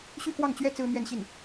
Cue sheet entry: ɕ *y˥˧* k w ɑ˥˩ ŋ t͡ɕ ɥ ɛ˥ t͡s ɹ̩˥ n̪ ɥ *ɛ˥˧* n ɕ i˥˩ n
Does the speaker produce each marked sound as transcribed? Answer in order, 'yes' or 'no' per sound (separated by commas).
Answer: yes, yes